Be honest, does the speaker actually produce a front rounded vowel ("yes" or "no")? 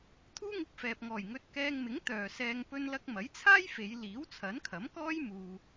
yes